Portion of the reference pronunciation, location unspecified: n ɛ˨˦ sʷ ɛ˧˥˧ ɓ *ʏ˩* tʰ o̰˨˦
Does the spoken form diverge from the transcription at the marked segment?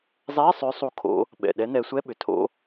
no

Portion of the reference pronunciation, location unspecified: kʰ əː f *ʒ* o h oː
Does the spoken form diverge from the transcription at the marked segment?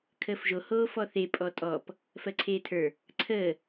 no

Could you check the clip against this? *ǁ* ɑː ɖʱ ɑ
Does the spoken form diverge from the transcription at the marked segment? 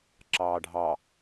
no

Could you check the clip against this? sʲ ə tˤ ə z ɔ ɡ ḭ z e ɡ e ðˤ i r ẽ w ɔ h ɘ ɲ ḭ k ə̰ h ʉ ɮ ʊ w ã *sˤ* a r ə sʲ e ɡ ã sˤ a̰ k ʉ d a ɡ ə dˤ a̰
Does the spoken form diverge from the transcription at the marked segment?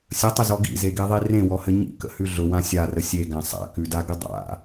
yes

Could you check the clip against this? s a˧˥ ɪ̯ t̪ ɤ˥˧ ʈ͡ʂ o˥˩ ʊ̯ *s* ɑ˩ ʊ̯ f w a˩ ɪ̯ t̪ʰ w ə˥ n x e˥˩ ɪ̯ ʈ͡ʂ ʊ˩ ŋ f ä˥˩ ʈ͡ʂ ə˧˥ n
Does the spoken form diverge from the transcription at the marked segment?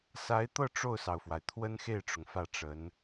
no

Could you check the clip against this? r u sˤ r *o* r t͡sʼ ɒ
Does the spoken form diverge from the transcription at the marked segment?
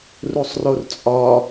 no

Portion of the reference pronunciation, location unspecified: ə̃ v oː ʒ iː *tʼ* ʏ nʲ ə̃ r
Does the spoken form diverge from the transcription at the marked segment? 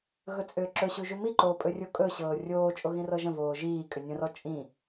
yes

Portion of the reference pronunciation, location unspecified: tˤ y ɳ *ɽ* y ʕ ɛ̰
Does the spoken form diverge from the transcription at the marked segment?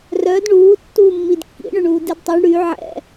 no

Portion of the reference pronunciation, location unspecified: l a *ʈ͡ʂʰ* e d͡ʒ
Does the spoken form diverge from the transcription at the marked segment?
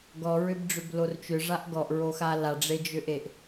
yes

